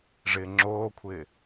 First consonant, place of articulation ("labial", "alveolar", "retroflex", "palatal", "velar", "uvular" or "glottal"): retroflex